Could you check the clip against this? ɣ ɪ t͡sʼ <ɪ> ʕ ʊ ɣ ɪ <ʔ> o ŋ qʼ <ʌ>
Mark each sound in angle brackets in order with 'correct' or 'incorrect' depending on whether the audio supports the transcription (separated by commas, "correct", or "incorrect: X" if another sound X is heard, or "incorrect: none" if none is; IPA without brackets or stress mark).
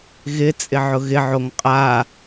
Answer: correct, incorrect: ʕ, incorrect: a